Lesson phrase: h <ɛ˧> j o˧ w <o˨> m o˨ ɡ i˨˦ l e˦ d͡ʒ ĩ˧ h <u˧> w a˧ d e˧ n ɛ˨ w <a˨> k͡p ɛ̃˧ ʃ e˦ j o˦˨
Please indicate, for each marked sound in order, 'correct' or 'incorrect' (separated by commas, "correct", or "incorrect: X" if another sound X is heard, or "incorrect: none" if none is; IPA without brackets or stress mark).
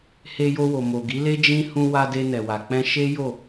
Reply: incorrect: e˧, correct, incorrect: ũ˧, correct